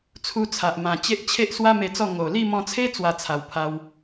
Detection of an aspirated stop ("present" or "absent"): present